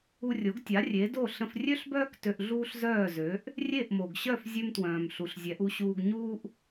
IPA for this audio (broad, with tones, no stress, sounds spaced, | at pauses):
u˧ rʲ o˩˥ ɡ tʲ a˩˥ rʲ e˩˥ d o˥˩ ɬ ə̃˧ f rʲ ø˥ ɬ b œː˥ k t ø˧ ʔ ɮ uː˥ ɬ z œː˥˩ z ø˩˥ ʔ | rʲ e˥˩ ʔ m o˩ ɡ ɕ œ˥˩ f zʲ ø˥ m t w œ̃ː˩ m ɬ u˩ ɬ zʲ ɛ˩˥ ʔ u˧ ɕ uː˧ ɡ ɲ uː˥ ʔ